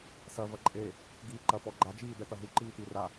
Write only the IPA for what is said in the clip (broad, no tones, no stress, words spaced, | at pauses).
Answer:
sɐvɐ ǃʼe | ɡiːǃɐ pɔɡ͡ǃad͡ʒiː d̪ɛt̪ɐɦu ǃiːt̪ira